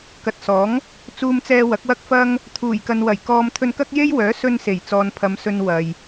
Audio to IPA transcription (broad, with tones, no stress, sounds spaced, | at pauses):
k ɐ˨ t̚ s ɔː˨˥ ŋ | t͡s uː˧ m t͡s ɛː˧ w ɐ˨˥ k̚ w ɐ˥ k̚ f ɐ˥ ŋ | t̪ʰ uː˨˩ j k ɐ˨ n w ɐ˨˩ j k ɔː˥ m t̪ʰ ɵ˧ n k ɐ˥ k̚ j e˥ j w œː˨˥ s ɵ˧ n s e˨˩ j t͡s ɔː˨ n pʰ ɐ˨˧ m s ɵ˧ n w ɐ˨ j